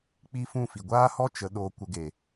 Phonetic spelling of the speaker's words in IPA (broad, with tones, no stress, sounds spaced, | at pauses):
k͡p i˦ f ũ˦˨ f i˨ ɡʷ aː˦ h ɔ˦ t͡ʃ ə˨˦ ɗ oː˧ kʷ ə˧ ɡ e˨